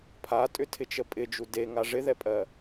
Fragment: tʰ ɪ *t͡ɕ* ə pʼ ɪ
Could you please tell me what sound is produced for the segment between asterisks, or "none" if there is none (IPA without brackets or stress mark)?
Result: t͡ʃ